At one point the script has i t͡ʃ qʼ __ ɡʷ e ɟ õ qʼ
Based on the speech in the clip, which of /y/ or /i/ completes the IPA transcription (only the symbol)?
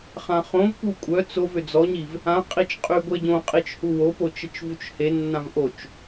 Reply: y